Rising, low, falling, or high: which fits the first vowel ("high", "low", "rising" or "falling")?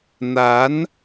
rising